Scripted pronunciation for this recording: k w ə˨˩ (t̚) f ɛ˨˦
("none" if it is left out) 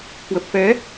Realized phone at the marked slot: p̚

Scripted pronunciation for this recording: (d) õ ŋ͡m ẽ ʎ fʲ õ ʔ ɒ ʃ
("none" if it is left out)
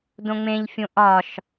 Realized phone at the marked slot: d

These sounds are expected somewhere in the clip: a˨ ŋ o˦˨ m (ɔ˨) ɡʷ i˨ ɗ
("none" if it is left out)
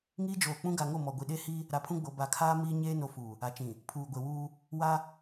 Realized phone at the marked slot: ɔ˨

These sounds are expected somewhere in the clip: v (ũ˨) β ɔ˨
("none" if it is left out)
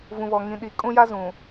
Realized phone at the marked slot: ũ˨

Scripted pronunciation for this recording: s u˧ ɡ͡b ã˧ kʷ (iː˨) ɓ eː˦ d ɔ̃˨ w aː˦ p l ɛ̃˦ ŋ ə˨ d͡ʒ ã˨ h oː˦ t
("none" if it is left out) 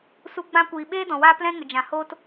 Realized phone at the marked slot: iː˨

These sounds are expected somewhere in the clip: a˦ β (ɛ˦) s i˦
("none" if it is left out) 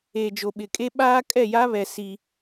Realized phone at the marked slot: ɛ˨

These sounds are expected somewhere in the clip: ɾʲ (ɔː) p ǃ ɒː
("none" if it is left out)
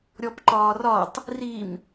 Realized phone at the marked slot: ɔ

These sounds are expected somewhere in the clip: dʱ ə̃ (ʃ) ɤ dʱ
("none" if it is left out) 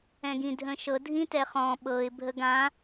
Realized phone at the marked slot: ʃ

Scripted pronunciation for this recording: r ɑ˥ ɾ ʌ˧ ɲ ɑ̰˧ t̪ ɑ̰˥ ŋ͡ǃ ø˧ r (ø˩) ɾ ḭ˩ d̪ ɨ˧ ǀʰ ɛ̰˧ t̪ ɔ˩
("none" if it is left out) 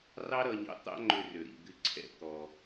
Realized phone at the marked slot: ø˩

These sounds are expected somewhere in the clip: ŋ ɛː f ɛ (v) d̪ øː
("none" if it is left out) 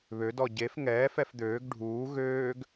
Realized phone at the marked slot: f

